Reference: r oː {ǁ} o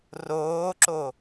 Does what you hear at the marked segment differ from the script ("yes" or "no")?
no